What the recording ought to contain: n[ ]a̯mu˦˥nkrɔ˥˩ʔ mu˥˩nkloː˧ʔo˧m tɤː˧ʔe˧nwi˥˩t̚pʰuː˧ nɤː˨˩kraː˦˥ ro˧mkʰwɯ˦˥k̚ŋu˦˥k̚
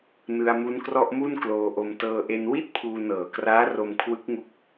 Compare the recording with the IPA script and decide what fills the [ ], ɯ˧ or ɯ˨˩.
ɯ˧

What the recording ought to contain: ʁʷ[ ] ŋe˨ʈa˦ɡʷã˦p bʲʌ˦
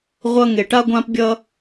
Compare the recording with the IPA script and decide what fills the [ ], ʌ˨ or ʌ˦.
ʌ˦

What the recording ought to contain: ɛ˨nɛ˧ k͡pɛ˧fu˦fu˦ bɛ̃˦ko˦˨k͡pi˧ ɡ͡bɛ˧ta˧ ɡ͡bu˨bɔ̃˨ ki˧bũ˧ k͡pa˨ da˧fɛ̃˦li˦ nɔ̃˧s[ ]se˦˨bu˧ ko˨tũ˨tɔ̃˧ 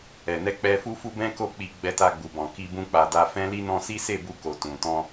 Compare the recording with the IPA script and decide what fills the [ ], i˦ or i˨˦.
i˦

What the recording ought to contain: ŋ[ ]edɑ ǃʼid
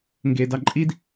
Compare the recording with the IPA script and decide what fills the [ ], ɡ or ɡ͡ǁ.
ɡ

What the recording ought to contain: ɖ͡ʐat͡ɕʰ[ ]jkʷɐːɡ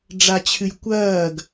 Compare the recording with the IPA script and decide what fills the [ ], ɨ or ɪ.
ɨ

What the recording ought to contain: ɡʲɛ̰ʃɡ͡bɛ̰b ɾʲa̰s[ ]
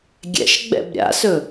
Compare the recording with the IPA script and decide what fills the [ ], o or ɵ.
ɵ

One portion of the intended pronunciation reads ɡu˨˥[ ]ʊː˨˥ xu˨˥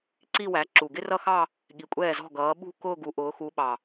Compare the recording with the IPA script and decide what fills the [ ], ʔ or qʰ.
ʔ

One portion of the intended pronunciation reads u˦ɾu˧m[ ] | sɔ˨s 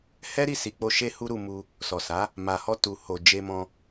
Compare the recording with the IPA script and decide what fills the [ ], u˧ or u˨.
u˧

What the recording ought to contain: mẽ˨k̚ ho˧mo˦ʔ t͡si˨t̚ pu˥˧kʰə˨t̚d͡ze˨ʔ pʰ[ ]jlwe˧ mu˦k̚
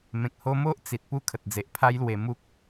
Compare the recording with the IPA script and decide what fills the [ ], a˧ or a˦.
a˦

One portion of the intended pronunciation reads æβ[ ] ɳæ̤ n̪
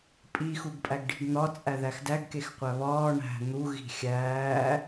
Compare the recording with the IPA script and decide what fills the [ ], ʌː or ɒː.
ɒː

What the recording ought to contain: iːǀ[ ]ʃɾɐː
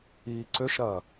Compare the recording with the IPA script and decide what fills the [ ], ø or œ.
ø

